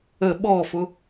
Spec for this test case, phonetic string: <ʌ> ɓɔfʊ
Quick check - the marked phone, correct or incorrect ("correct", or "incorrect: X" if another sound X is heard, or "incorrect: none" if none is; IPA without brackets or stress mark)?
incorrect: ə